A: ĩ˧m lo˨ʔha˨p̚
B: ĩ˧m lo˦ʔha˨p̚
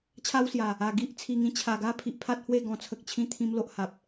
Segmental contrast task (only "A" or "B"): A